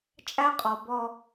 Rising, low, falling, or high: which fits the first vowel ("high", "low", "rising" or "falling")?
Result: high